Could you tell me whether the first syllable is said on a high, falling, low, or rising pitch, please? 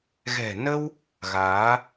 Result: low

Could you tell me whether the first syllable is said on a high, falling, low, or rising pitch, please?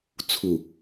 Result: low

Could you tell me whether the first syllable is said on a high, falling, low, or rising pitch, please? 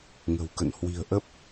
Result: low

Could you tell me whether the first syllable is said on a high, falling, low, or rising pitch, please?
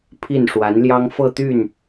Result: falling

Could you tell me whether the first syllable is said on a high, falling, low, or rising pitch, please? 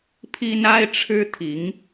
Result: high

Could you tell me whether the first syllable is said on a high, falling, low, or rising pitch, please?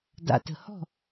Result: low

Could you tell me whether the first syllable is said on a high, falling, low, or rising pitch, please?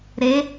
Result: rising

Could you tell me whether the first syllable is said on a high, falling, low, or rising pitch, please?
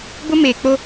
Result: high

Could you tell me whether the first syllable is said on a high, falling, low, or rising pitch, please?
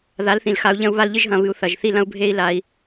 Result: rising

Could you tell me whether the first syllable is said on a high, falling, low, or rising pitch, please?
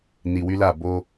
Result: low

